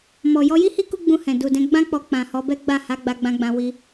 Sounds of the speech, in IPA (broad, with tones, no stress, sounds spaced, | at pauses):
m ɔ˨ j ɔ˧ j i˦ h i˦ k u˦ ɡ͡b ũ˧ h ɛ̃˨ d u˨ d ɛ̃˧ ɡ͡b ã˦ k͡p ɔ˧ k͡p ã˨ h ɔ˨˦ b ɛ˦ ɡ͡b a˦˨ h a˨˦ ɡ͡b a˧ ɡ͡b ã˧ ɡ͡b ã˧ w i˧